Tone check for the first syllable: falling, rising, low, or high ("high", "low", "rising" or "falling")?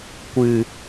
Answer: low